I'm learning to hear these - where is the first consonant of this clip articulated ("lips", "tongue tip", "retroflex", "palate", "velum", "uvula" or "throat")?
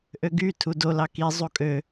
throat